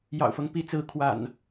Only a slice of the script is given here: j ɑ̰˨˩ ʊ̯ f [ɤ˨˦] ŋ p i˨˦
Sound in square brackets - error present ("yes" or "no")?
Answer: yes